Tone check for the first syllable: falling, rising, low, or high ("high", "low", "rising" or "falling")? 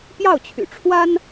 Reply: falling